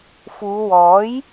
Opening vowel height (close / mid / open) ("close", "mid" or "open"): close